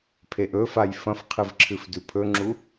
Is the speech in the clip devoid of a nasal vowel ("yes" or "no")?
no